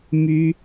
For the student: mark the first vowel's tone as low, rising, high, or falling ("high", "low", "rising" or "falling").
high